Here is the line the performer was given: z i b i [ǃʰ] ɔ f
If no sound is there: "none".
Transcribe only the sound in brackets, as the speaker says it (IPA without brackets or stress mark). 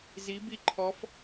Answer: ǃʰ